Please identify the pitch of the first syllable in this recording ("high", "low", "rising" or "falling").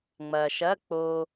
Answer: low